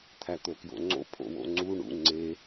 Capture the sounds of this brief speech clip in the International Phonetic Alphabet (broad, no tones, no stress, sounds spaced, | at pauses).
t̪ʰ æ t̪ o k j o̰ ŋ͡ǀ o̰ pʰ o̰ w o̰ ŋ͡ǀ u ɳ ṵ ŋ͡ǀ e